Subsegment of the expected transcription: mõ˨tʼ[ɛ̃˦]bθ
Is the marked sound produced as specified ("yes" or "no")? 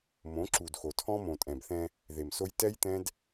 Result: no